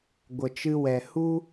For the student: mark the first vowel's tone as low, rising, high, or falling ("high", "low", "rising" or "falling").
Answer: low